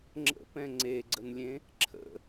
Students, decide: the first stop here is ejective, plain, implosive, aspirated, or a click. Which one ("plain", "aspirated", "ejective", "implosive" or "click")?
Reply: click